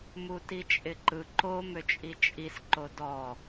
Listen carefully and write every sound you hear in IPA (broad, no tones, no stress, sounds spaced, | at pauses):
m u t i t͡ʃʼ ɪ ǃ ɯ ǃ o m ø t͡ʃʼ i t͡ʃʼ i s ǃ o d ɔ